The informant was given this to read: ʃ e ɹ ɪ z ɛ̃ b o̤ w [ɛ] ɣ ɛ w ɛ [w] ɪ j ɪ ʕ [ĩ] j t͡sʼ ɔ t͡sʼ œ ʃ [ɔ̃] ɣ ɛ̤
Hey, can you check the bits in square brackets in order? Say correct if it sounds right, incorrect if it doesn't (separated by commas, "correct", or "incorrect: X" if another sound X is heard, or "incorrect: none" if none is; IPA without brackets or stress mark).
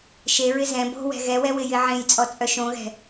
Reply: incorrect: ɛ̤, correct, incorrect: ẽ, incorrect: õ